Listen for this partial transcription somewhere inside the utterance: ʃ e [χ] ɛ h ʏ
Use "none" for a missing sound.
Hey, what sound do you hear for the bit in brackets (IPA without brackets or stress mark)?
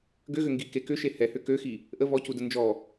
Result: h